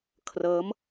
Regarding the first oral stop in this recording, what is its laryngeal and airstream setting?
aspirated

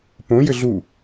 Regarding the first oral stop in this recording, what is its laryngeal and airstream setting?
plain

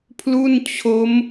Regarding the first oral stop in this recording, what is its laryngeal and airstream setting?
aspirated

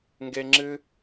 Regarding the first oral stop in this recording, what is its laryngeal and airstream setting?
plain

